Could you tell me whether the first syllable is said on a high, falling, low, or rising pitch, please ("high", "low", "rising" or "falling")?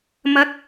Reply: rising